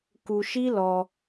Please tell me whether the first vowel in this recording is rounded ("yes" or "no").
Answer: yes